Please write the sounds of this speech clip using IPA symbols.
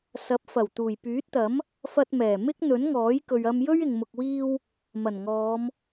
sɐ˨˥p̚fɐ˨˩w t̪uː˨˩jpyː˨˥t̚t̪ɐ˨˥m | fɐ˧t̚mɛː˨˩ mɪ˥k̚ n̪ɵ˨˥nŋɔː˨˥jkɵ˨ɥ ɐ˧mjɵ˥ɥ ɪ˨ŋmʊ˨k̚wiː˧w | mɐ˨˩nŋɔː˨˧m

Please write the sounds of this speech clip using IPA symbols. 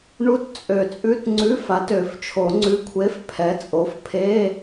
ɳu˧˥˧tt͡sʼø˨˩˦t͡sʼʉ˧˥˧t ŋ͡ǀʉ˧˥˧fa˨˥t ø˨˩˦ft͡ʃʰo˨˩˦ŋ͡ǀʉ˧˥˧kʷʰe˧˥˧f pʰɛ˨˥t͡sʼo˨˥fpʰe˧˥˧

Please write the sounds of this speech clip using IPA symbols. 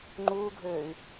ŋ͡ǃuːɡʱøːy̯

